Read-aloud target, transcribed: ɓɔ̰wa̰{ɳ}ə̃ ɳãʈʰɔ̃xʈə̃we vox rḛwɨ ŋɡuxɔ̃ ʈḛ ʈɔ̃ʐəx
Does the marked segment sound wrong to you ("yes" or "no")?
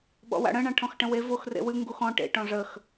yes